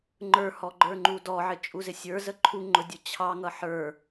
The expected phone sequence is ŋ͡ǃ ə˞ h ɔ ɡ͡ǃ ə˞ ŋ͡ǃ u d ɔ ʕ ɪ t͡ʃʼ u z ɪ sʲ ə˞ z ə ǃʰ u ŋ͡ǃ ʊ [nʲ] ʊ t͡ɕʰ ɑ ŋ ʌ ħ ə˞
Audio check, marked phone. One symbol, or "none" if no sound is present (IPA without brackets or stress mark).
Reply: dʲ